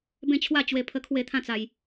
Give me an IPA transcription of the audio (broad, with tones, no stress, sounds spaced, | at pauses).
b ẽ˥˧ t͡ɕʰ w a˥˧ t͡ɕ w e˧ pʰ ə˦ kʰ w e˥˧ t̪ʰ ã˦ t͡s a˧ j